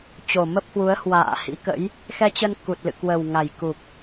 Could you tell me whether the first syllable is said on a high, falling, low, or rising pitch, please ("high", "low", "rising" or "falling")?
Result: low